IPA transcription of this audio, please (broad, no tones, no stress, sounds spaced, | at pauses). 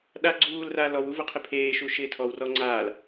ɗ a ɡ͡ǀ uː l r a l ɔ w u v ʊ qʰ ɪ pʰ eː ʃ u ʃ ɪː tʰ ɔ w r ɔ ŋ͡ǀ aː l